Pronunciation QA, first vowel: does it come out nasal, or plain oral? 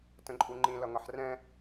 nasal